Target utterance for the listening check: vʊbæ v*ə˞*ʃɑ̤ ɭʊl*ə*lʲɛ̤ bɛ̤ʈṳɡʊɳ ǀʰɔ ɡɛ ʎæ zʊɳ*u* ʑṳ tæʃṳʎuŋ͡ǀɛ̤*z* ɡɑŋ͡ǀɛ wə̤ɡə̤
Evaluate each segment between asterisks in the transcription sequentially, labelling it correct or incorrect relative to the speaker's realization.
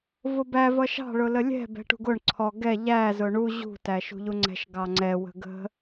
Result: incorrect: ʌ, correct, correct, incorrect: ʃ

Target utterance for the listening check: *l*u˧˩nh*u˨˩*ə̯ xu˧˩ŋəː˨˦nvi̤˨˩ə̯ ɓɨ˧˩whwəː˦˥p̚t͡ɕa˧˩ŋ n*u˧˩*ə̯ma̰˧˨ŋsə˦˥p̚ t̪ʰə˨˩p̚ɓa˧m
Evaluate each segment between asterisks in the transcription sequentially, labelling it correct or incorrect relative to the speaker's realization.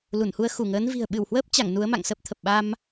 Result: correct, incorrect: u˧, incorrect: u˨˦

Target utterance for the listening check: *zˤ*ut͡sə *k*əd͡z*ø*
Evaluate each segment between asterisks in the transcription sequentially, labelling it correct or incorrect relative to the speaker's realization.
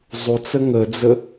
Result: correct, incorrect: ŋ, incorrect: ə

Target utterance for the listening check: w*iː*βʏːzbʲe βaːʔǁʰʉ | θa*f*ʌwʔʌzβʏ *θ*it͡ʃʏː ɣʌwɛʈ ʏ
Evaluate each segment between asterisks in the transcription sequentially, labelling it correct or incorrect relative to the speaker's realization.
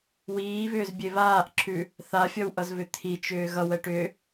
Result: correct, incorrect: fʲ, incorrect: t̪ʰ

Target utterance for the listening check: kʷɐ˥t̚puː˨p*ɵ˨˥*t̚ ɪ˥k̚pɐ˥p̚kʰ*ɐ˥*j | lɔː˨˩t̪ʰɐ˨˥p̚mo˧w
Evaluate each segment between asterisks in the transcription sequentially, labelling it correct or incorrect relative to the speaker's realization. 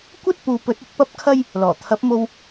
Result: correct, correct

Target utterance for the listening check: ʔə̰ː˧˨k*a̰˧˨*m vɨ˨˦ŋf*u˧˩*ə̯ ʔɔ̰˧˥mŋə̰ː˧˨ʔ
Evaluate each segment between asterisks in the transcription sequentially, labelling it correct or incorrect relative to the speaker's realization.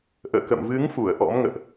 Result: incorrect: ə̰˧˨, correct

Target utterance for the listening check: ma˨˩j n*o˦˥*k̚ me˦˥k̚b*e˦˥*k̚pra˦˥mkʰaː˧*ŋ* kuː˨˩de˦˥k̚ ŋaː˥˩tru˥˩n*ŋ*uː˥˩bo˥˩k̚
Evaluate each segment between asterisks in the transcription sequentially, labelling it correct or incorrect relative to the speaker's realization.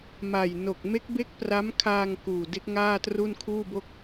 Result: incorrect: o˨˩, correct, correct, incorrect: kʰ

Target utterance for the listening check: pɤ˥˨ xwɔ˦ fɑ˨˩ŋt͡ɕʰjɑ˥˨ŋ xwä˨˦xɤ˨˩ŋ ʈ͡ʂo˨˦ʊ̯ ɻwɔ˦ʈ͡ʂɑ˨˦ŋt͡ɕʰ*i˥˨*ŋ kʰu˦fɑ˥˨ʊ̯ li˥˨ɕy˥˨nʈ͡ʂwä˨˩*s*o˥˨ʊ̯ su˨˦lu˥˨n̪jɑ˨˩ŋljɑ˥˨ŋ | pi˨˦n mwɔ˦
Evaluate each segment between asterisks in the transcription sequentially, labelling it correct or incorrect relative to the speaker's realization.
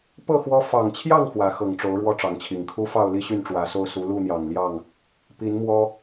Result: incorrect: i˨˩, correct

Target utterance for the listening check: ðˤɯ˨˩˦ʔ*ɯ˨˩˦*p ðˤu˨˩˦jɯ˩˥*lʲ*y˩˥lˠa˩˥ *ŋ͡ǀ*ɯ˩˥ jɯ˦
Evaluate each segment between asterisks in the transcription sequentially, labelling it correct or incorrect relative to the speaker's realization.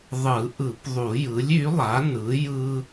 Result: correct, correct, incorrect: n

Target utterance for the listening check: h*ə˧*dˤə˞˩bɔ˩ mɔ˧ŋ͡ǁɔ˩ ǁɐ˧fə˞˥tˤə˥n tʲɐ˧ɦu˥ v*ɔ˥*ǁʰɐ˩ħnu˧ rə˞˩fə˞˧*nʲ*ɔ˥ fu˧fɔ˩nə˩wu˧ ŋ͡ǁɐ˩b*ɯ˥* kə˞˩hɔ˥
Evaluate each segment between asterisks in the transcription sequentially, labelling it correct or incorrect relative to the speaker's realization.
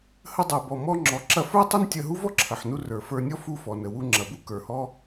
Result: correct, correct, correct, incorrect: u˥

